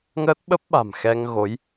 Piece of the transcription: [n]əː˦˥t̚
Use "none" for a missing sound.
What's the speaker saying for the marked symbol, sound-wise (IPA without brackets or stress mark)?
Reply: ŋ